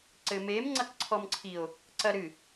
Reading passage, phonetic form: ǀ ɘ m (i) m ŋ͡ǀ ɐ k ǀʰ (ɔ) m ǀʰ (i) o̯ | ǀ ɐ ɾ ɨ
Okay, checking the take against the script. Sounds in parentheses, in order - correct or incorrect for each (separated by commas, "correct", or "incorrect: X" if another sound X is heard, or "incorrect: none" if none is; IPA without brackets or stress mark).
incorrect: e, correct, correct